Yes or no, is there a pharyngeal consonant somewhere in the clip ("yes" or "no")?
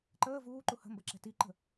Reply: no